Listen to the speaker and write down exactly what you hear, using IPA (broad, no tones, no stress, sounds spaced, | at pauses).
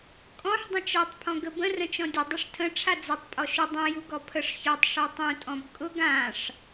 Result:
kʼ ɔ̃ ħ dˤ ə̃ t͡ʃ ɔ tˤ pʰ ɔ̃ ɡ ə b ə̃ r ə̃ t͡ʃ ɔ̃ dʲ ʊ dˤ ʊ ʂ tʰ ə̃ ʈ͡ʂʰ a d͡z ʊ tˤ pʼ ɔ ʃ ʊ dˤ ũ j u ɡ ɔ pʰ ə ʂ ç ɔ tˤ ʂ a tˤ ũ tʼ ɔ̃ b kʼ ʊ ɡ ã ʂ